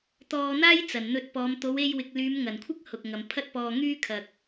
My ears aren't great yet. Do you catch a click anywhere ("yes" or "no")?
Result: no